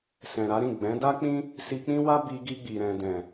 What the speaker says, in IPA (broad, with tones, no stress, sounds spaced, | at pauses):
s ɛ̃˨ ɾ a˨˦ ɾ ĩ˦˨ ɡ͡b ɛ̃˨˦ d a˦ k͡p ĩ˦ | s i˧ k͡p ĩ˦ w a˦ b i˧ ɡ i˧ ɡ͡b i˨ ɾ ɛ̃˨ d ɛ̃˨